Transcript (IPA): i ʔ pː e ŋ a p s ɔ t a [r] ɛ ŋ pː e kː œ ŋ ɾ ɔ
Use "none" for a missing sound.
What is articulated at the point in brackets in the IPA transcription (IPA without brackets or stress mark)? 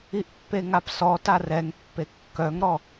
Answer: r